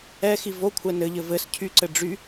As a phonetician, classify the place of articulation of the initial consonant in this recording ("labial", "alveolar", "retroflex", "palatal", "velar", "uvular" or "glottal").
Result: velar